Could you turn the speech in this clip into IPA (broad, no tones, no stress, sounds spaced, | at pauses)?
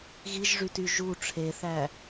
ɣ i ʒ ʐ y t y ʒ u ʈ͡ʂʰ e θ æ